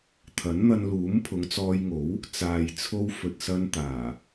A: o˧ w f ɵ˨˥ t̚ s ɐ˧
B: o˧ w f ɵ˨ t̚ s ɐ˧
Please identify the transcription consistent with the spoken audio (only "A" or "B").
B